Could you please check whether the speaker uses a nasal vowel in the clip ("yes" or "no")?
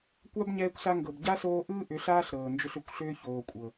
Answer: no